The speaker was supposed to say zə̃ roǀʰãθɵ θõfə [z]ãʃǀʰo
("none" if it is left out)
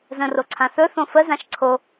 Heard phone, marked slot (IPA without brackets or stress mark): z